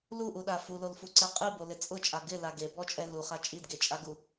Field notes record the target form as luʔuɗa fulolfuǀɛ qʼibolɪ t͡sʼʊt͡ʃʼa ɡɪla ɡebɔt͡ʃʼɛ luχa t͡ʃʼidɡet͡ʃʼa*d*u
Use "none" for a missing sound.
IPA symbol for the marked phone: ɡ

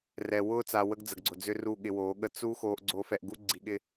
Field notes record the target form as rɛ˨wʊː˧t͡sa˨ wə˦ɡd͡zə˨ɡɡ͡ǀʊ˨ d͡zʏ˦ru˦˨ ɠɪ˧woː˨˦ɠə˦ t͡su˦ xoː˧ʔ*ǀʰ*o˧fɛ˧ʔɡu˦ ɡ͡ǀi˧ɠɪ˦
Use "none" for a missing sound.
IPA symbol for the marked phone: ɡ͡ǀ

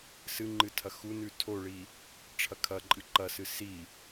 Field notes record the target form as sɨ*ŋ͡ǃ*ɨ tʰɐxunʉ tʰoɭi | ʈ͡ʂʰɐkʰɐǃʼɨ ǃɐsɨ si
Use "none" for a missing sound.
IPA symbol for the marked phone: ŋ͡ǃ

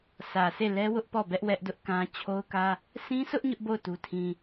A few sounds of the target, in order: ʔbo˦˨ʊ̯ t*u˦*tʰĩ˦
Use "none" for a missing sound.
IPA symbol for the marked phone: u˦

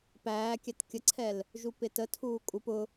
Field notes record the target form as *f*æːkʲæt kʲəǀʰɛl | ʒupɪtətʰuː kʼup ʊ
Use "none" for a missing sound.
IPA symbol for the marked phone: p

